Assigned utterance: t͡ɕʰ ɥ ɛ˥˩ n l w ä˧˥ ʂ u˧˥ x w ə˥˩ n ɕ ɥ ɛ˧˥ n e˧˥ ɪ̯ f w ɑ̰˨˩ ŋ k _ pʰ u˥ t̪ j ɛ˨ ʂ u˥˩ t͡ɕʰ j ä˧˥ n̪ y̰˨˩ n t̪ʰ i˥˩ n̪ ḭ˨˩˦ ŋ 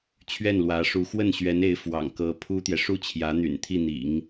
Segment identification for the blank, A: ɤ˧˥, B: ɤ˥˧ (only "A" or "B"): A